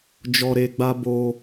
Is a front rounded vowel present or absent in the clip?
absent